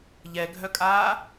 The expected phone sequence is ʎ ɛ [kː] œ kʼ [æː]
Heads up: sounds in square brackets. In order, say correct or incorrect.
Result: incorrect, incorrect

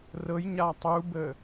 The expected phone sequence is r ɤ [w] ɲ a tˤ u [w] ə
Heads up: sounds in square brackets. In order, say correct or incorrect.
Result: incorrect, incorrect

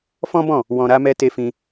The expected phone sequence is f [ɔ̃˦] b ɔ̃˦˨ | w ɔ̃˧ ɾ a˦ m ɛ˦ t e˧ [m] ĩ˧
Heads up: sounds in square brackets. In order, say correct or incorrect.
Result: correct, incorrect

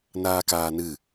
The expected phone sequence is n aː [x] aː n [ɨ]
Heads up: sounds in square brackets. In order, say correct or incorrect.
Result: incorrect, correct

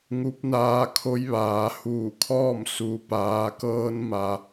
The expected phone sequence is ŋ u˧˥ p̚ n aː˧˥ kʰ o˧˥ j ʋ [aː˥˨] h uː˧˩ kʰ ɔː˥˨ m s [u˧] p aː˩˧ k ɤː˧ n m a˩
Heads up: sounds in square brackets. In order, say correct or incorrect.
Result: incorrect, incorrect

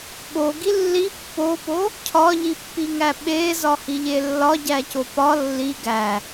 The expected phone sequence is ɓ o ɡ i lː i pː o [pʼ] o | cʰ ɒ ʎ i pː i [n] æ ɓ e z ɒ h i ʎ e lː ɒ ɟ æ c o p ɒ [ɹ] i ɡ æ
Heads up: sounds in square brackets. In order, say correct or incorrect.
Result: incorrect, incorrect, incorrect

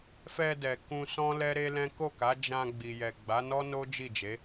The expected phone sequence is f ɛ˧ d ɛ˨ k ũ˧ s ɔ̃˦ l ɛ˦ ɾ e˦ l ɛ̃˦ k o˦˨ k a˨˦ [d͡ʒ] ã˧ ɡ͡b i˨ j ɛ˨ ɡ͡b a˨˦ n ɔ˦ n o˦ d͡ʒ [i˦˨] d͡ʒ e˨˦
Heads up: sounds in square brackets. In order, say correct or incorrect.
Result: correct, correct

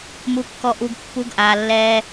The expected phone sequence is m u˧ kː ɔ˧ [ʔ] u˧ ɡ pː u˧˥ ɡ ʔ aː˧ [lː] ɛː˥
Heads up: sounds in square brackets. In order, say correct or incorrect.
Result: correct, correct

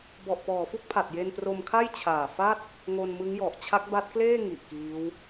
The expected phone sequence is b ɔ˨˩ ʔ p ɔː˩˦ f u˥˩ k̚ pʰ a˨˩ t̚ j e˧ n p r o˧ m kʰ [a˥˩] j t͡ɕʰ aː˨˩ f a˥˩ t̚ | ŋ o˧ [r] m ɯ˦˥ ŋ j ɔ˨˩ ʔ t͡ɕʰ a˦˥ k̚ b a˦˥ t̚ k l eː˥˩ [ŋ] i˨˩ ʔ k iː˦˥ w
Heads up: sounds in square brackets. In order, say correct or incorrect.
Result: correct, incorrect, correct

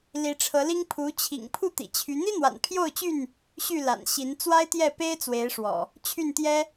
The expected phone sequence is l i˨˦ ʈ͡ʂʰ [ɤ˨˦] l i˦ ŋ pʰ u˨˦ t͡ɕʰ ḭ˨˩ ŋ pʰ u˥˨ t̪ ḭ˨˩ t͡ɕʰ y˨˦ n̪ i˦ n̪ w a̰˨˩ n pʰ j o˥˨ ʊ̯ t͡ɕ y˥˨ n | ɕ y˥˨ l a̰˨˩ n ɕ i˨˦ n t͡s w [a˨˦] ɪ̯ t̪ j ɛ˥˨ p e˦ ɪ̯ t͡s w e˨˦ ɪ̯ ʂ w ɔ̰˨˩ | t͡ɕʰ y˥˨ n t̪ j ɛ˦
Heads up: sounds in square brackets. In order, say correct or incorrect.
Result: correct, incorrect

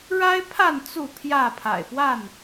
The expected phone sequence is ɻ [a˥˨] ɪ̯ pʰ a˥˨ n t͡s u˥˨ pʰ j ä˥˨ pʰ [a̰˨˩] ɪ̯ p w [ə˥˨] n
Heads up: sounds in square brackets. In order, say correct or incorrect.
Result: incorrect, correct, incorrect

